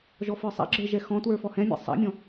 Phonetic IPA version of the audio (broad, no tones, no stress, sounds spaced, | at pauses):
ʒ ɔ f ə˞ sˤ a̰ ɡ͡ǁ ə˞ ʒ ɛ x ɔ̃ t w ə˞ f ɔ h ɛ̃ mʲ ɛ̰ sˤ a̰ mʲ ɔ̃